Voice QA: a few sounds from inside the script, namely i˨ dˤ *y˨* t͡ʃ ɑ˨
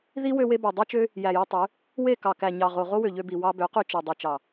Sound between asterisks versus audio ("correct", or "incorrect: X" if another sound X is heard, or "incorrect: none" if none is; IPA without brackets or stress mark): correct